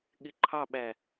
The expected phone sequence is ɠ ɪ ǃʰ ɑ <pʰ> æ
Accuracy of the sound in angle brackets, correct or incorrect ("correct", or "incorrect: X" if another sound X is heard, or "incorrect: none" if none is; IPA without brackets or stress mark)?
incorrect: ɓ